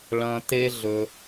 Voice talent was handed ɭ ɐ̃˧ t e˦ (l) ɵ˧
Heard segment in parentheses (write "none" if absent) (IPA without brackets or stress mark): ɮ